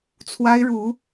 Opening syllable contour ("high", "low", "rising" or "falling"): high